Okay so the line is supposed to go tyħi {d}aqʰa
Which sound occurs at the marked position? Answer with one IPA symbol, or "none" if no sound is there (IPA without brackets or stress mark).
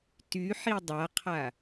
dˤ